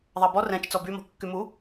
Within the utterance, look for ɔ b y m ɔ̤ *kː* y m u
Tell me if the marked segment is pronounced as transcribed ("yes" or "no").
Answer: yes